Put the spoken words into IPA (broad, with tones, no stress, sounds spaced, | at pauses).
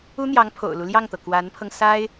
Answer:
u˥ n̪ j ɑ˧˥ ŋ pʰ o̰˨˩ ʊ̯ l u˦ l j ɑ˥˩ ŋ t̪ ɤ˩ k w a˧˥ n pʰ ɤ˧ ŋ s a˥ ɪ̯